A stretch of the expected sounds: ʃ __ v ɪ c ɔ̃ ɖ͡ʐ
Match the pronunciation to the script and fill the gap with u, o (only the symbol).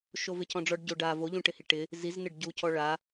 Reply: o